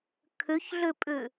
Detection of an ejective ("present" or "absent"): present